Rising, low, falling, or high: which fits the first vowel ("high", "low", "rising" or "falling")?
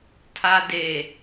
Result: low